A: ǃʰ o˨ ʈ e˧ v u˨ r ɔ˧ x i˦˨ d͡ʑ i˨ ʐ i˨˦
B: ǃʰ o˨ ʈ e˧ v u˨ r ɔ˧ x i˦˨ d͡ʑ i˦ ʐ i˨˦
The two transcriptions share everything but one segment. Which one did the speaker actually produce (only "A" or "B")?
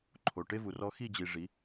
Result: A